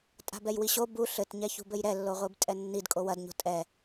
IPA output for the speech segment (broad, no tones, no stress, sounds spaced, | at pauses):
tʼ a̤ b ɛ j w i ɕ o b u ɬ ɘ t ɲ ɛ ç ṳ b ɘ j ɾ ɛ lː o ʁʷ i b tʼ ɛ nː i d kʼ o w ɐ d ɲ o̤ tʼ ɛ